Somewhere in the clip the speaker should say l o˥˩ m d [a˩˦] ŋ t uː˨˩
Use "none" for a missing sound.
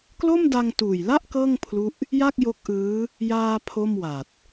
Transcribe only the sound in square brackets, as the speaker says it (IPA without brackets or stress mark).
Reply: a˧